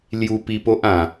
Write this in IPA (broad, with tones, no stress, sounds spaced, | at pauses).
l j u˧ p i˧ p o˦ ʔ ã˨˩